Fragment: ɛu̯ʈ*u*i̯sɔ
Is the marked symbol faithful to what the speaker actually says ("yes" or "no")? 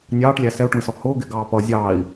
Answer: no